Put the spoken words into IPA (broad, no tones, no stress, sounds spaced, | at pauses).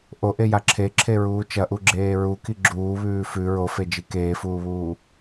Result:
ʔ o ʔ e j a ǁʰ e ǁʰ e ɹ uː t͡ʃ ɐ ʔ u ɡ͡ǁ eː ɹ u k i ɡ͡ǁ uː β ʉː f ʉ ɹ o f e d͡ʒ i k eː f uː β uː